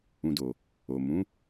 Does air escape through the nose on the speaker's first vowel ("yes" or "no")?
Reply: yes